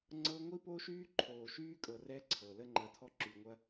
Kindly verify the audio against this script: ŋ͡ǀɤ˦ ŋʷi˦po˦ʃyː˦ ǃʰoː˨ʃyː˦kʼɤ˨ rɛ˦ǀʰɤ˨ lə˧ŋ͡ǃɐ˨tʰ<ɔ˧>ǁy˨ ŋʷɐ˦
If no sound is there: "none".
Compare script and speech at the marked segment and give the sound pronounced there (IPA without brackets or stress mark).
ɔ˧